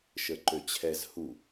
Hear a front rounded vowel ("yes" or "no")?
yes